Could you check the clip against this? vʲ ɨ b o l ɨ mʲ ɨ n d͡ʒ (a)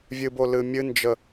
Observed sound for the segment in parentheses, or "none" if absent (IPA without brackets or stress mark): ə